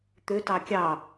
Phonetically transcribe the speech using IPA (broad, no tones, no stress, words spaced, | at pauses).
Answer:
t̪øtɑ kʲɑ